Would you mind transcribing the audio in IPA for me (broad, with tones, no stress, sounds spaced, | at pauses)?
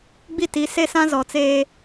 ɡ͡b i˦ t i˨˦ s e˦ s ã˦ z ɔ˨ t͡s eː˦